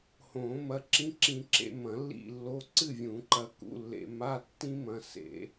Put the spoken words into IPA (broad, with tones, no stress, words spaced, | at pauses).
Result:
hõ˨˩˦mɐ˧ ǁĩ˧˥˧ǁĩ˧ǁḛ˧ mɐ̃˨˩˦lːḭ˥˨lːo˧˥˧ ǀɨ˥˨vʲũ˨˩˦ǃɐ˧ kṵ˧˥˧lːḛ˧ ma˧˥˧ tːĩ˥ mɐ̃˧ sḛ˨˩˦